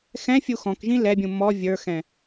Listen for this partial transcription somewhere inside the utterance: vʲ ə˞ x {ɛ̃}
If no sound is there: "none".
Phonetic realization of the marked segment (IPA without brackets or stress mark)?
ɛ̃